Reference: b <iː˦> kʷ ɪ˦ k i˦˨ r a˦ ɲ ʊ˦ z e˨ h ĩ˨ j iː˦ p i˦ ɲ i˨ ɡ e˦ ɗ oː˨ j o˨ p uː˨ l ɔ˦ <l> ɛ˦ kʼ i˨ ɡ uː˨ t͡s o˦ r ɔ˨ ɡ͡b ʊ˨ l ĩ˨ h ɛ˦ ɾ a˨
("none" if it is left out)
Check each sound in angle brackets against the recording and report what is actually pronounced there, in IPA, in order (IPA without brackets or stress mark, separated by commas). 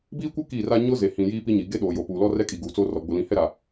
iː˦, r